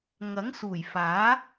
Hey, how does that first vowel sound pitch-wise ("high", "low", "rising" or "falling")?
rising